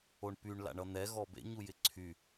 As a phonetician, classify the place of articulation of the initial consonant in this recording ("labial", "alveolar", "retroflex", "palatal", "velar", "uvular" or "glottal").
retroflex